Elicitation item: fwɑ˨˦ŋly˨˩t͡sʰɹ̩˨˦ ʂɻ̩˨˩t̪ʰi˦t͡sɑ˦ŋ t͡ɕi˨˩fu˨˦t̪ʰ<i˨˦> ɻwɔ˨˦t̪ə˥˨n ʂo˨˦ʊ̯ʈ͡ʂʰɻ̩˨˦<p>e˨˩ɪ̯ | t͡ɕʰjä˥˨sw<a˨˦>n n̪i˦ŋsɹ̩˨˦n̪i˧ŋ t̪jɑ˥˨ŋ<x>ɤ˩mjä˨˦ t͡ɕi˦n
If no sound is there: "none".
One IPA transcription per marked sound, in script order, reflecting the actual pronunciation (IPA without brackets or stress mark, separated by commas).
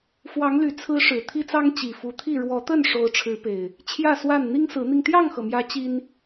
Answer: i˥˨, p, a˥˨, x